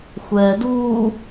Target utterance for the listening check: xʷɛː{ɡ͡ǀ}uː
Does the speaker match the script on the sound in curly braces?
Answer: no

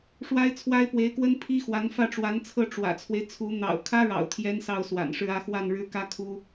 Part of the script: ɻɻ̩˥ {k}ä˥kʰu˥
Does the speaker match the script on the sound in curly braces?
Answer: yes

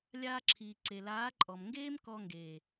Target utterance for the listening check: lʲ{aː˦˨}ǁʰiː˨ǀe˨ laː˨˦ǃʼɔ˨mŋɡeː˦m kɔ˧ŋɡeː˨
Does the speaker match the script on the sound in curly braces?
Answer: no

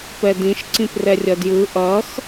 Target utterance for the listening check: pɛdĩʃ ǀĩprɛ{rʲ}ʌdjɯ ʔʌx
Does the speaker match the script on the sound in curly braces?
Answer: yes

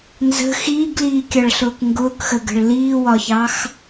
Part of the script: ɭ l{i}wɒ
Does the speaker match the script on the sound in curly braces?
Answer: no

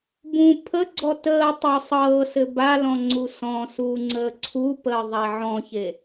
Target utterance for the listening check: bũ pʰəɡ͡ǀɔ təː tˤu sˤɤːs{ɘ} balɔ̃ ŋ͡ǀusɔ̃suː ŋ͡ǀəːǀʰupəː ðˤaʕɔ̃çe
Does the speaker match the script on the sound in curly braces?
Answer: yes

